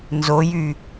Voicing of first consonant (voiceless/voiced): voiced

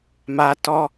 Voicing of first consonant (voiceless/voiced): voiced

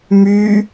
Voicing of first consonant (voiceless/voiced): voiced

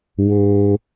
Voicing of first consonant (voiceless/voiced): voiced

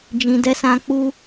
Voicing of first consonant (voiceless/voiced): voiced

